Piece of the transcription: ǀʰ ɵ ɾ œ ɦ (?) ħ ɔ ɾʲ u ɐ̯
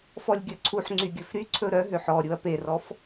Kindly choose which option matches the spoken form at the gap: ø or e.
ø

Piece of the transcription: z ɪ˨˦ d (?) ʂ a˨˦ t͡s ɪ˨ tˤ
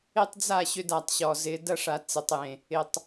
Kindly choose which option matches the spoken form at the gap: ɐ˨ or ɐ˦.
ɐ˦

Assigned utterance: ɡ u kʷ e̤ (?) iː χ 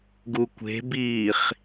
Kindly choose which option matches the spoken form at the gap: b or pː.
b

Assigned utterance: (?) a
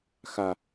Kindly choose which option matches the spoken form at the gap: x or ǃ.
x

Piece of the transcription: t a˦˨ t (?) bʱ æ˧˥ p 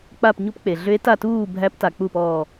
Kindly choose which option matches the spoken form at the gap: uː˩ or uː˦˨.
uː˦˨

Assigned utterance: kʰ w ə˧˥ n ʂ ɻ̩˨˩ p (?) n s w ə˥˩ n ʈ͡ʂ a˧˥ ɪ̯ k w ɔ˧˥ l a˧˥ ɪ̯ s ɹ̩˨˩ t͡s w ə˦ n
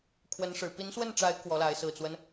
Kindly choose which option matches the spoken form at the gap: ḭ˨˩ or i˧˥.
i˧˥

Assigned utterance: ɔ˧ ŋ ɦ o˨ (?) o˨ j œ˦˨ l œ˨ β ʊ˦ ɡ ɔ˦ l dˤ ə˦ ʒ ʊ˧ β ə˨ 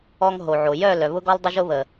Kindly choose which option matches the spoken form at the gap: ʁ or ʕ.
ʕ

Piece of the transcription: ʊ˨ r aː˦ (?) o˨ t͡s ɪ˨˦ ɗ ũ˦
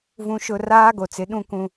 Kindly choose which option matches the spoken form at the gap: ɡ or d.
ɡ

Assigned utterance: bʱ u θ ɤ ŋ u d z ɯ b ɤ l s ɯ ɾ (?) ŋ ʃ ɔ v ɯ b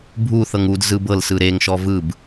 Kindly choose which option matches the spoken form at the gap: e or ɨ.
e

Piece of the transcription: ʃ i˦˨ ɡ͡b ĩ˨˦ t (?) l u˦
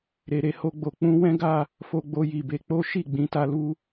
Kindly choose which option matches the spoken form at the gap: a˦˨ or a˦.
a˦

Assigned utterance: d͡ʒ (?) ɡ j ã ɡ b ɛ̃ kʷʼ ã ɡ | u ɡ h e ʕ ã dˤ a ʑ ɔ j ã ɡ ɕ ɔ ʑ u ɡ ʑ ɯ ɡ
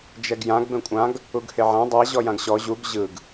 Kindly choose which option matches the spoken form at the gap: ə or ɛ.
ɛ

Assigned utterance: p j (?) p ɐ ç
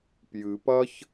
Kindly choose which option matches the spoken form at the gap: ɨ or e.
ɨ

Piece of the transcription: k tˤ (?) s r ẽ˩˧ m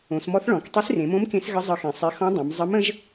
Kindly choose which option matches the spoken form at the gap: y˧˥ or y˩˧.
y˧˥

